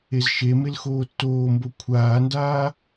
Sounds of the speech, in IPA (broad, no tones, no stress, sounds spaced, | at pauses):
e z ʃ e m e l x oː tː oː m b o kʷʰ aː n d aː